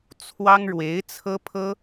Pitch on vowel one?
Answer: high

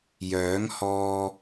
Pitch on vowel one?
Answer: rising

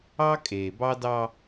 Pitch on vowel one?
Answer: high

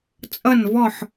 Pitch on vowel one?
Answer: falling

